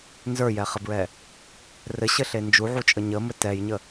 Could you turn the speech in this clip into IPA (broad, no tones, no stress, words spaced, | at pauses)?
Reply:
nzə˞jɛχəbɹɛ | rɘɕɘɬe nd͡ʒuʕut͡ʃʼə ɲəmɘ tɛjɲə